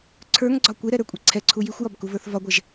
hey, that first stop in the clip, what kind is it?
click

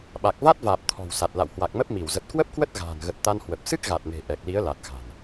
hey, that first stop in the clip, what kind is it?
implosive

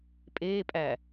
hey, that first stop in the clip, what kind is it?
ejective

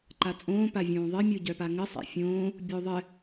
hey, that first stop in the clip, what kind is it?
click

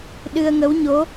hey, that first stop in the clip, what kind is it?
implosive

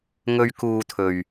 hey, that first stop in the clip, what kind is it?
plain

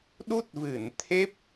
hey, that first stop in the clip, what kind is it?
implosive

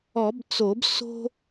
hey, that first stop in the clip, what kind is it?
plain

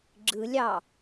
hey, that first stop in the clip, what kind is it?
click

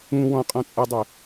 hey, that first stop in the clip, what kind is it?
ejective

